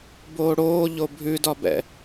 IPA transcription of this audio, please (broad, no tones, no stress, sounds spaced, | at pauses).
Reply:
b oː ɽ oː ʎ o bʱ ʉ d ɒ b ɛ̰